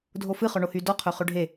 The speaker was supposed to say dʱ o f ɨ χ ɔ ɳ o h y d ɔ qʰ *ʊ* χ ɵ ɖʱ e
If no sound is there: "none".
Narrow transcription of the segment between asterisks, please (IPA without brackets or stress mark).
ɵ